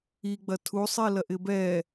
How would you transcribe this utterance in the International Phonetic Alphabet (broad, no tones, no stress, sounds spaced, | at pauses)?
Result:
i ɡ͡b ɐ tʰ u sˤ i l ɐ ʔ ɪ b ɛ